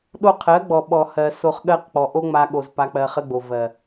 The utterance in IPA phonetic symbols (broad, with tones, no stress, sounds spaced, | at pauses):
ɗ o˧ qʰ ɜ˨˦ ɡ͡b ɔ˨ ɓ ɔ˨ h ɜ˨ s o˧ χ ɠ ɜ˦ q k͡p ɔ˨ ʔ o˦ ŋ͡m a˧ ɠ o˨ z p a˧ k͡p ɜ˧ χ ə˦ ɡ͡b o˨ v ɜ˨